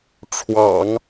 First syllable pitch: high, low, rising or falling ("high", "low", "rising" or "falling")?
low